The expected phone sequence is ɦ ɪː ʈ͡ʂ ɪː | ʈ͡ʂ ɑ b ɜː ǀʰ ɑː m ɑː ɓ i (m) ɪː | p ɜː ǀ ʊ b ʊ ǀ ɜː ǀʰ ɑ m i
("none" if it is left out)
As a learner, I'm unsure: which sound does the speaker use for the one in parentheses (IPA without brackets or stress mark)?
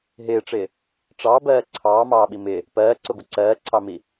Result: m